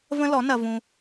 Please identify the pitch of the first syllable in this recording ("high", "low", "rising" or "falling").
high